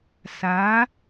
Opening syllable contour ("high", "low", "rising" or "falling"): rising